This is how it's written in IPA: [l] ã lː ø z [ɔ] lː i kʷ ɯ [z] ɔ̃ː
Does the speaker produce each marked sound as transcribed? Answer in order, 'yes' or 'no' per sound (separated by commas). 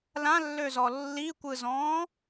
yes, yes, yes